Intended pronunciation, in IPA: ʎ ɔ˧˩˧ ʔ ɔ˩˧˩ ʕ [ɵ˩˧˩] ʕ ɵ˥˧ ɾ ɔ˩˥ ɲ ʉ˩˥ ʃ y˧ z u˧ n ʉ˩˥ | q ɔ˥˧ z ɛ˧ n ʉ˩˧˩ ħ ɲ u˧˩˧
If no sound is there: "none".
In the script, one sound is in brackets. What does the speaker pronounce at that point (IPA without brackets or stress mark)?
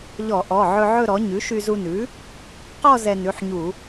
ɵ˧